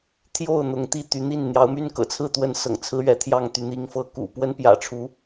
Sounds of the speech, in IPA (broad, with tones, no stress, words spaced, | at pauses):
t̪ʰjo˥˨ʊ̯n̪ʊ˨˦ŋ t̪i˥˨t̪y˨˦n̪i˥˨n n̪jɑ˨˦ʊ̯my˦nkɤ̰˨˩t͡sʰɹ̩˥˨ t̪wə˨˦n sɤ̰˨˩ŋt͡sʰɹ̩˦ɥɛ˨˦t̪ʰjɑ˥˨ŋ t̪y˨˦n̪i˨˦ŋ fɤ˨˦kṵ˨˩ pwə˦npjä̰˨˩ʈ͡ʂʰu˨˦